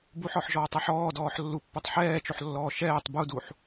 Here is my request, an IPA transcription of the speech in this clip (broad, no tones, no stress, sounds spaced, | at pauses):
b u ħ ɔ ħ ʒ ɔː tˤ e ħ ɔː d ɔː ħ lː u pː ø tˤ ħ ɛː t͡ʃ o ħ lː ɔː ʃ ɛː tˤ b u d u ħ